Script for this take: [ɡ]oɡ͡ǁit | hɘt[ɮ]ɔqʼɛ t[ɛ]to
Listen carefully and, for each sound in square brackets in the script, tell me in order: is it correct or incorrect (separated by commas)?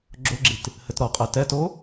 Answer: incorrect, incorrect, correct